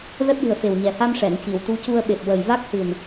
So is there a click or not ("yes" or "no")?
no